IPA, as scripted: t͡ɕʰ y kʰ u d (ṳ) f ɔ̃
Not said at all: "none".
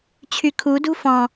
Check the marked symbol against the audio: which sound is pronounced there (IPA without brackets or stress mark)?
ṳ